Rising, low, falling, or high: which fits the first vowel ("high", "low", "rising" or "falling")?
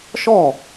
falling